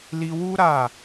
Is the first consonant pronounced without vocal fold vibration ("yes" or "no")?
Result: no